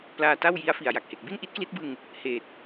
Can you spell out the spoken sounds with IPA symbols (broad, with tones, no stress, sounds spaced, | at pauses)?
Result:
p l aː˧ t a˥˩ w j i˦˥ a̯ f i˨˩ a̯ j a˨˩ k̚ h e˨˩ k̚ b i˥˩ n ʔ i˦˥ t̚ k l i˦˥ t̚ b ɯ˧ ŋ | h eː˨˩ t̚